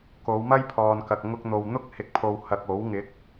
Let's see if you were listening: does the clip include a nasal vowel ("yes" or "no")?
no